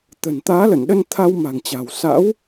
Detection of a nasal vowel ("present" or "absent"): absent